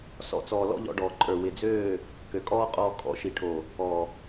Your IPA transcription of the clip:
s ɔ̰˨ t͡s ɔː˨ l ɔ̰˦ ʎ ɔ̰˧ ɖ ɔː˨ ǃʼ ə˞˨ w ɪ˨ d͡z øː˦˨ | k ø˨ kʼ ɔː˦ qʼ ɔː˧ kʼ ɔ̰˨˦ ʃ i˨ ʈʰ o˨ | ɔ˨

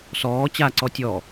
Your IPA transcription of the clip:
s ɔː t͡ɕ a ǀ ɔ tʲ ɔ

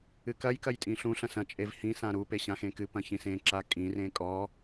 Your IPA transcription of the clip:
ɨ k ɐ j k ɐ j tʼ ĩ ɬ ũ ɬ ɐ̃ s ɐ̃ t͡ʃʼ e v h ĩ s ã ɾ u p e ɕ ã x ẽ k ɨ p ɐ̃ ç ĩ s ẽ ǁ a kʼ ĩ r ẽ kʼ ɔ

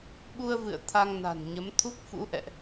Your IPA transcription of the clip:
ɓ u˧ ə̯ v ɨ̰˧˨ ə̯ t̪ʰ a˧ ŋ n a̤˨˩ n ɲ ə˨˦ m t̪ʰ u˦˥ k̚ f ṵ˧˥ ʔ ɛ̰˧˨ ʔ

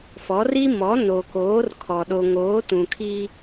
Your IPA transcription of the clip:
f ɔ˨˦ r i˦ m ɔ˨˦ n o˨ k oː˨˦ r kʰ ɔ˨ ɗ o˨ ŋ oː˨˦ t ũ˨ kʰ i˦

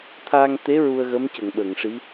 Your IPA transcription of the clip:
t̪ʰ a˧ ŋ t̪ e˧˥ ɹ u˧ ə̯ ɣ ə˧˥ m c ə˨˩˨ ŋ ɓ ə˨˩˨ ŋ ʂ i˧˥

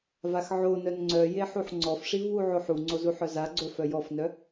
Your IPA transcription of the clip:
v a x ʕ o n œ n ŋ͡ǀ œ j e ħ u ħ ŋ͡ǀ ɔ f ʂ i v w u ʕ o ħ u ŋ͡ǀ o z u ħ œ z a ɡ͡ǀ o f œ j ɔ f n œ

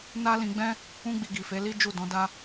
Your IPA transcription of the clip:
n a˦ l ĩ˧ ɡ͡b ɛ̃˦ | ũ˦ ɡ͡b i˧ ɡ i˨ f e˨˦ l i˦ d͡ʒ u˦˨ d ɔ̃˨˦ d a˦

